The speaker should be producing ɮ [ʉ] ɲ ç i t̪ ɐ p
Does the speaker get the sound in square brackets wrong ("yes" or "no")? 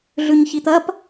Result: no